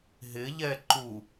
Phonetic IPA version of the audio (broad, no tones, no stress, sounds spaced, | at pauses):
ɦ ɪ ʎ ɛ ǃ u